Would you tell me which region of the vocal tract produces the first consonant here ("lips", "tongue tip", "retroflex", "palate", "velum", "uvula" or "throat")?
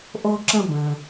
throat